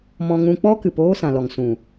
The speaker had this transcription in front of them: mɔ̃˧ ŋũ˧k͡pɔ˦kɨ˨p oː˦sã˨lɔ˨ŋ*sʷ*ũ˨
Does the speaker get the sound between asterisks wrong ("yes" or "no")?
yes